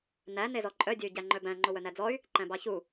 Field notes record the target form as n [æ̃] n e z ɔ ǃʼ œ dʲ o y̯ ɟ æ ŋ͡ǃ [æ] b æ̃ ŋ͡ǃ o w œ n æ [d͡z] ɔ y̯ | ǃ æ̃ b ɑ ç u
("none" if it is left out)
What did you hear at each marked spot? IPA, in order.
æ, œ, d͡z

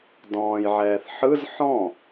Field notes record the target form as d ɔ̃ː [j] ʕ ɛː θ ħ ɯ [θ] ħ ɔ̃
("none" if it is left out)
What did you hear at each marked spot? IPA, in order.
j, z

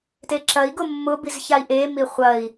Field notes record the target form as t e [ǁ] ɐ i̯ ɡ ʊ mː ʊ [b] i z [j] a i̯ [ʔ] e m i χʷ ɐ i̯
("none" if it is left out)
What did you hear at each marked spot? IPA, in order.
ǁ, b, ç, ʔ

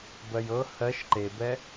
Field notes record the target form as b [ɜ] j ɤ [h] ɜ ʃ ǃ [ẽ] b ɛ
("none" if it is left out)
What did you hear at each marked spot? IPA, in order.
ɜ, h, e

